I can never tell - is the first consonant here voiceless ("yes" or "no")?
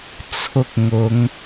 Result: yes